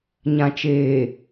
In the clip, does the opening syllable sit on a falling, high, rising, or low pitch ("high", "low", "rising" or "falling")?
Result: low